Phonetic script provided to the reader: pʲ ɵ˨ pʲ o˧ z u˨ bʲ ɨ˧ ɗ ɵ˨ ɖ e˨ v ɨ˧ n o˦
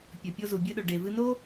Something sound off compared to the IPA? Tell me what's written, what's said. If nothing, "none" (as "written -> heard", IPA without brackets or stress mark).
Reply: none